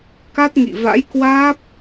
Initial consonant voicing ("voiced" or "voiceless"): voiceless